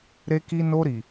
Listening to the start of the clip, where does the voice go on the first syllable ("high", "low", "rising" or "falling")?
high